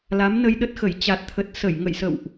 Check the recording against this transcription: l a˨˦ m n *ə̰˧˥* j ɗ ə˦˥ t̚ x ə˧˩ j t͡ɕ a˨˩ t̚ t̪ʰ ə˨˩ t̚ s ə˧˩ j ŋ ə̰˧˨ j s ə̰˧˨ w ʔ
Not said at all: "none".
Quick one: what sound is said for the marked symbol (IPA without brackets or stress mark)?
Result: ə˧